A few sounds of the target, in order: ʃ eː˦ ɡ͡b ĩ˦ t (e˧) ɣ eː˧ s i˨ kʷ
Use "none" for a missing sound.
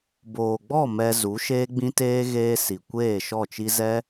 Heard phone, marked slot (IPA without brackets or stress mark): eː˧